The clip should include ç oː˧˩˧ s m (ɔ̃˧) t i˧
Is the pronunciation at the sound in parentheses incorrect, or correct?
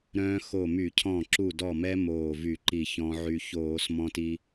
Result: correct